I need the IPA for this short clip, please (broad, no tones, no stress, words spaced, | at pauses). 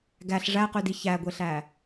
ɡæɬ ʐæqydi çæɡʷeɬæ